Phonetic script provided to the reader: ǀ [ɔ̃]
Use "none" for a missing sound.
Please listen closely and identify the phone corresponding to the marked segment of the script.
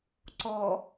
ɔ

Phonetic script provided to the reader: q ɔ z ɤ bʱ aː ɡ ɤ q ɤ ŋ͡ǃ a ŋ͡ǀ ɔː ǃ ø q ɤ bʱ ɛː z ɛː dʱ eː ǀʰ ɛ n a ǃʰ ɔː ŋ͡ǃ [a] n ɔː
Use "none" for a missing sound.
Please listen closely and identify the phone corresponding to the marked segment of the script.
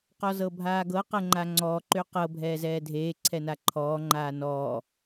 aː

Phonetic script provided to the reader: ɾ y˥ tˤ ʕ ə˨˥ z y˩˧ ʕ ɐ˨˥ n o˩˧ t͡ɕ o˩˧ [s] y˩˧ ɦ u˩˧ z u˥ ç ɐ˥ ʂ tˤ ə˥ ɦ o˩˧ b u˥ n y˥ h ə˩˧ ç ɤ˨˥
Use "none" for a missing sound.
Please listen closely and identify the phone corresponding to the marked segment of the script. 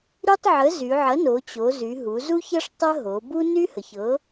z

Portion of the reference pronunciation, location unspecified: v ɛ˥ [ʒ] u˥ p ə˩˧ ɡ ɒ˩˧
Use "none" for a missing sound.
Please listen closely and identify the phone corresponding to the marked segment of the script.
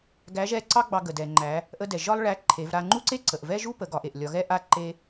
ʒ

